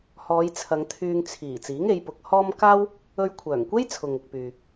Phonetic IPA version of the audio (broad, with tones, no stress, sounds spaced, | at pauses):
h ɔː˨˧ j t͡sʰ ɐ˨˧ ŋ t̪ʰ yː˧ ŋ t͡sʰ iː˨˩ t͡s iː˨˥ ŋ e˨˧ j p ʊ˨˥ k̚ h ɔː˥ m k aː˥ w | ɵ˧ ɥ kʷʰ œː˨˩ ŋ kʷ e˥ j t͡sʰ ʊ˨ ŋ ʊ˨ k̚ p yː˨